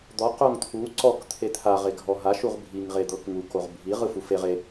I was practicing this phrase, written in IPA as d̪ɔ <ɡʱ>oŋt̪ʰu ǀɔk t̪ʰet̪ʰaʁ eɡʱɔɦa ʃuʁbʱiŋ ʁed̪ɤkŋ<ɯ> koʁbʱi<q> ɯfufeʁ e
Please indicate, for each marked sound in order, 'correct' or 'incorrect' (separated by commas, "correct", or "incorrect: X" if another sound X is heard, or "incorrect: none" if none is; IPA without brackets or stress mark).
incorrect: q, incorrect: u, incorrect: ʁ